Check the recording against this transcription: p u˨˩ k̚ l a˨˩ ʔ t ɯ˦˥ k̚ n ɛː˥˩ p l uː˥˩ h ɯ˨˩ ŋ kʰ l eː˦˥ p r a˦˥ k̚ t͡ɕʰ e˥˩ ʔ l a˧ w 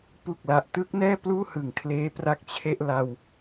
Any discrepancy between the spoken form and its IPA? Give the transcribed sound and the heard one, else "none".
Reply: none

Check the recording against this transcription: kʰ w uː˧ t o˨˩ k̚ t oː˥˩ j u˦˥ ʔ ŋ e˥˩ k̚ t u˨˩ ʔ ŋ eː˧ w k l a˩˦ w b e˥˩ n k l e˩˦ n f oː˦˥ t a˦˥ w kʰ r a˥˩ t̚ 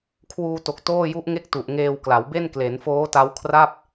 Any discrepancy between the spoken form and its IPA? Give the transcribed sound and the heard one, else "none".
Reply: t̚ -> p̚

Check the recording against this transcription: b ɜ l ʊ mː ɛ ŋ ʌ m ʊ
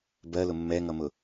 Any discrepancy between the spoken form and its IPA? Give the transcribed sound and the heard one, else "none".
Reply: none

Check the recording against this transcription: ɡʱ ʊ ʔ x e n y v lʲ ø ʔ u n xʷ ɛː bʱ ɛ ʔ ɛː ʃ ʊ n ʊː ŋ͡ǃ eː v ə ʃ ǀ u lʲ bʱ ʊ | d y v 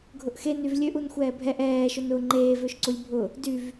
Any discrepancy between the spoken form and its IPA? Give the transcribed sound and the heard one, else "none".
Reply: ə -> ø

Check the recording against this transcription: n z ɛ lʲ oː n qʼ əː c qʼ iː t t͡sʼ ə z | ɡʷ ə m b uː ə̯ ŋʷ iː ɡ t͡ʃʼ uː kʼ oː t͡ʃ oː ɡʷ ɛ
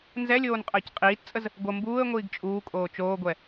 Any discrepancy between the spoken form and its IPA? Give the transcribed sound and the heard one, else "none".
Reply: none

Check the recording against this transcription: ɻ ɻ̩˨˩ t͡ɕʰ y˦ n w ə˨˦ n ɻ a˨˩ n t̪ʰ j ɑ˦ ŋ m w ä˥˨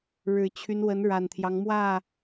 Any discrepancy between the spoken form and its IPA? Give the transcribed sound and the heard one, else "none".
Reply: none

